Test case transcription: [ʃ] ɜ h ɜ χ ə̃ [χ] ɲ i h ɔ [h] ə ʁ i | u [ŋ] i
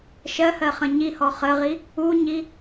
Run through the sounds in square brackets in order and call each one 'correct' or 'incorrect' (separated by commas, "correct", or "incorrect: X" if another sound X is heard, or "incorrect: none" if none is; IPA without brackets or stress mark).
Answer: correct, incorrect: none, incorrect: χ, incorrect: ɲ